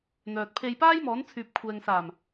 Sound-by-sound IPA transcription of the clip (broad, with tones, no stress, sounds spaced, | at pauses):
n̪ œː˨ t̚ pʰ e˧ j p aː˥ j m ɔː˨˥ n t͡sʰ yː˨ p̚ kʷʰ ɛː˨ ŋ s aː˨˩ m